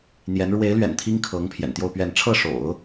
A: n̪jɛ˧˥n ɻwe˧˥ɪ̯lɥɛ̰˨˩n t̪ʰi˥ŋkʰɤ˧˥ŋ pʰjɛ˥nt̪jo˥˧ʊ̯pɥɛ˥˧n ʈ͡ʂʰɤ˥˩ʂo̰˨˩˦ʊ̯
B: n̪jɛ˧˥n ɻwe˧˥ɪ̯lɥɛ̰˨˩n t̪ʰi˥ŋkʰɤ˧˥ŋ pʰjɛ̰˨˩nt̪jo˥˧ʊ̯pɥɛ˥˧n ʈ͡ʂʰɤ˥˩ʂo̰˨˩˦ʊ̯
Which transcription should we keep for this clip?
B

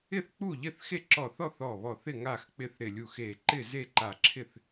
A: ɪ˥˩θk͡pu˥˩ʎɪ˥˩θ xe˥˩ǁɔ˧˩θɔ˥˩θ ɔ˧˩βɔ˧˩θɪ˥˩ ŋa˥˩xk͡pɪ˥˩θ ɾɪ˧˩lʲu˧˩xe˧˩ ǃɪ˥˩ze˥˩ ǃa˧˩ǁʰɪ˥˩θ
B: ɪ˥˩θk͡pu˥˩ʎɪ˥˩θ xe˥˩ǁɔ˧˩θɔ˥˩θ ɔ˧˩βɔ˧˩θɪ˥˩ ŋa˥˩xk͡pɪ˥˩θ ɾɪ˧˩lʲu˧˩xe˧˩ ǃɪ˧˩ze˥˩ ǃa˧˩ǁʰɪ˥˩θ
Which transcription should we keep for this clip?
A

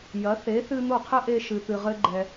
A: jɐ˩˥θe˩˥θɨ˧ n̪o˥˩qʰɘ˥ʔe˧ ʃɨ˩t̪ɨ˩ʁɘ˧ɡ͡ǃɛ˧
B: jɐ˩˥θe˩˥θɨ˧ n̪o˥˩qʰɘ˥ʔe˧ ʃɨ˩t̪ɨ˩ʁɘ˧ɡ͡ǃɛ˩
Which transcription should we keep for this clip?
B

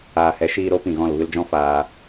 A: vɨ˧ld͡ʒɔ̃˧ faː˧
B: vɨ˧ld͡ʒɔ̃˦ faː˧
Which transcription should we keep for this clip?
B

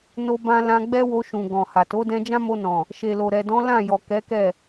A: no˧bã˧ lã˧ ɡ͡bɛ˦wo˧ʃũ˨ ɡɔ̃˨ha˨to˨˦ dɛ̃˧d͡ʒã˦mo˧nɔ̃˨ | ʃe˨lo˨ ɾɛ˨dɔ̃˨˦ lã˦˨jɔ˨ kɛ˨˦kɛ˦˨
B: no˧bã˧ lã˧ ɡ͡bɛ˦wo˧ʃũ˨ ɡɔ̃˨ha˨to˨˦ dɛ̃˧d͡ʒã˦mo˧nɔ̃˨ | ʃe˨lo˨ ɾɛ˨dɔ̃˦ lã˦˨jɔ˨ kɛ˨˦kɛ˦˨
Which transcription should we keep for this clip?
A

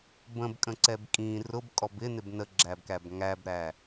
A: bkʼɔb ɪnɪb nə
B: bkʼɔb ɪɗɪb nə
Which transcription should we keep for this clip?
A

